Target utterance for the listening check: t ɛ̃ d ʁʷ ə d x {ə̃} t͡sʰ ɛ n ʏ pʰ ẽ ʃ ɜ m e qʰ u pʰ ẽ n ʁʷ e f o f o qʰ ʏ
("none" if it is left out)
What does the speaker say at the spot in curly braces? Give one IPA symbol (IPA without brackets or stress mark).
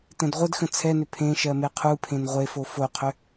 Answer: ə̃